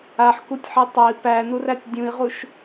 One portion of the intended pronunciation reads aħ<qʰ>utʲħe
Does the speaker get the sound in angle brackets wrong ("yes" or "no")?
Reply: yes